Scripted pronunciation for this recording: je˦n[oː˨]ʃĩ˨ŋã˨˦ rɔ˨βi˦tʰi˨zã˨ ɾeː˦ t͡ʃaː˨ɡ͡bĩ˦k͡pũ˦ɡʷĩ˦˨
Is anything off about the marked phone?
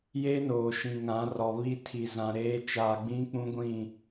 no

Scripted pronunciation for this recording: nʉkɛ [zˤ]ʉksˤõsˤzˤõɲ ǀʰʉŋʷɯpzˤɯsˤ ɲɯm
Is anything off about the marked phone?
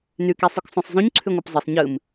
yes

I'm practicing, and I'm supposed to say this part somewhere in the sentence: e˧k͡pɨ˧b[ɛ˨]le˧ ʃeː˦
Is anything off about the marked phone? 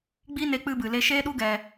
yes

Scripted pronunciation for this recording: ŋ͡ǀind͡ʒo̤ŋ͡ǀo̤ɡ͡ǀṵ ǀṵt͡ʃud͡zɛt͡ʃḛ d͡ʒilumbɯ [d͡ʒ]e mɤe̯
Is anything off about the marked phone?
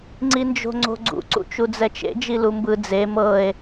yes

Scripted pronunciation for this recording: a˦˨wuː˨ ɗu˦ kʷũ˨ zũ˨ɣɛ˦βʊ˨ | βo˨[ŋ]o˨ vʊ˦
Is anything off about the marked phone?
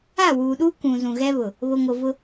no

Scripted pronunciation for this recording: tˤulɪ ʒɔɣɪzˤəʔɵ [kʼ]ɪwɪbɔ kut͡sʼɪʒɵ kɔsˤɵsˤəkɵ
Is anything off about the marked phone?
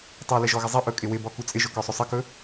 no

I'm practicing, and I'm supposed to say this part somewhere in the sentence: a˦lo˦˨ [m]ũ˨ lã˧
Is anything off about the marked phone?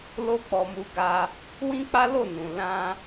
yes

